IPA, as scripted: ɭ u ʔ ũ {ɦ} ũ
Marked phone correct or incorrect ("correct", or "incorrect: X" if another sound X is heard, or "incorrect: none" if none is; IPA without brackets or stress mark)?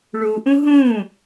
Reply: correct